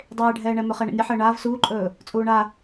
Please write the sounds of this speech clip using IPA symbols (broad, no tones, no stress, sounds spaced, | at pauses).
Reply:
dˤ eː ɖʱ ɛː ɳ ɛ m ɵ χ ɛ ɳ ə̰ nʲ ə ħ əː ɳ aː v s uː ǃʼ ɵː | t͡sʼ uː ɳ a